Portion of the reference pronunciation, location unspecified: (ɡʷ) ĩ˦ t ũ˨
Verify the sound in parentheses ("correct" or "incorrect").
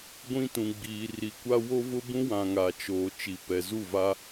correct